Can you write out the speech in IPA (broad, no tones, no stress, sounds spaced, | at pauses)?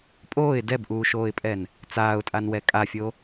pʼ oː ɪ̯ d ɛ b ʔ uː ʃ oː ɪ̯ pʼ ɛ n | t͡s aː ʊ̯ tʼ a n w ɛ kʼ a fʲ o